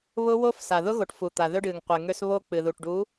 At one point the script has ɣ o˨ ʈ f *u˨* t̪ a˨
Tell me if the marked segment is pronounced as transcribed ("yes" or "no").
yes